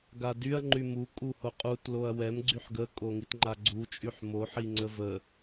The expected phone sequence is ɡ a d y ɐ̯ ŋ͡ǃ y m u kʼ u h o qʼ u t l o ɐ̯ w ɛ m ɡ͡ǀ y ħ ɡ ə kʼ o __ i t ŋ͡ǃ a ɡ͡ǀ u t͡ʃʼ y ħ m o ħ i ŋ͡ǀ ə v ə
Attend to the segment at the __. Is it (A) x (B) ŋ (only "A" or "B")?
B